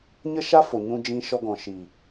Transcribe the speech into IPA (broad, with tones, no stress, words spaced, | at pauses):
ɲə˦ʃa˦fo˨ ɲũ˧d͡ʒĩ˧ʃɔ˧ɡɔ̃˨ ʃiː˨